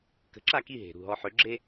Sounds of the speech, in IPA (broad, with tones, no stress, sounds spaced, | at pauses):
k ə̤˩˥ ǁ a˥˩ k i˥˩ ɦ e̤˩ ɾ ṳ˥˩ ɦ ɔ˧ ħ ø˩˥ ɡ͡ǁ e˥